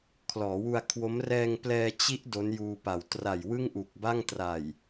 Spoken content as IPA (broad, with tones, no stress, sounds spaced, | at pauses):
kʰ l ɔː˩˦ w u˧ a̯ kʰ w o˦˥ m r ɛː˧ ŋ p l ɛː˧ t͡ɕ i˦˥ ʔ d o˦˥ n j uː˧ p a˨˩ w t r a˨˩ j w ɯ˥˩ ŋ ʔ u˨˩ k̚ b a˥˩ ŋ t r a˨˩ j